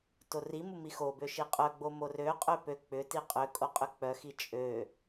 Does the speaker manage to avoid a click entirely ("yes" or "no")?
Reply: yes